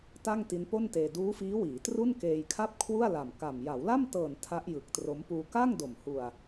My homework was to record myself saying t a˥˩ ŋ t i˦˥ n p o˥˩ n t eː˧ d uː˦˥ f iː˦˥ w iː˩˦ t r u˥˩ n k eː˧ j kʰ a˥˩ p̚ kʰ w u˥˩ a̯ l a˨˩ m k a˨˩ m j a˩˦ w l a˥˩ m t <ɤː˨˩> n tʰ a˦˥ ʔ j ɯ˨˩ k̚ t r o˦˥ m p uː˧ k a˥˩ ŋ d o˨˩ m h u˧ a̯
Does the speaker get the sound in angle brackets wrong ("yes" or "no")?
no